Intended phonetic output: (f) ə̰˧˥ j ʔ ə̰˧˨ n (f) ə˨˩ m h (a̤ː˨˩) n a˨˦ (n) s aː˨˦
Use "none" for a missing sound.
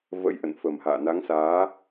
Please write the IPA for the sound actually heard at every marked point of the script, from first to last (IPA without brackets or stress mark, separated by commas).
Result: v, f, a̰ː˧˨, ŋ